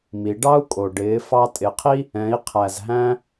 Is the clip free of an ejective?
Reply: no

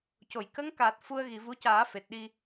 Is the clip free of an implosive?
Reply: no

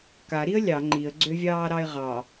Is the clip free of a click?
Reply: no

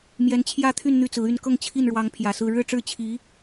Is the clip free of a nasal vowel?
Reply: yes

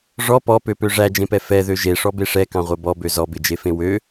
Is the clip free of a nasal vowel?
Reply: no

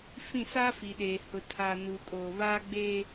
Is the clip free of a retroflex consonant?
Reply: yes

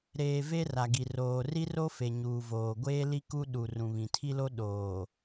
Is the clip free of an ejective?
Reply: yes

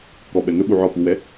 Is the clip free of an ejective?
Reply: yes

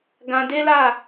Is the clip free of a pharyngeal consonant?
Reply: yes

